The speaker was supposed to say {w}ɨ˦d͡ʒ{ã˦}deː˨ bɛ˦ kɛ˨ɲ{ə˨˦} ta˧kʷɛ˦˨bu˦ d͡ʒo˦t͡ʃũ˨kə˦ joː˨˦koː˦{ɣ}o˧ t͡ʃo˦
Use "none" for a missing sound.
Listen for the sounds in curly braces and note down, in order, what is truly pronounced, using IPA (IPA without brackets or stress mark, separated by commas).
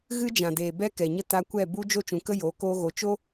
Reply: ɣ, ã˨, ə˦, ɣ